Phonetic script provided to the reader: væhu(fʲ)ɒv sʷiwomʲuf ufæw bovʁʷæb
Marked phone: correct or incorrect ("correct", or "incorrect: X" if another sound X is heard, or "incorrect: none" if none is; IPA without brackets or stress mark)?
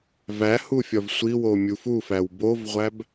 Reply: correct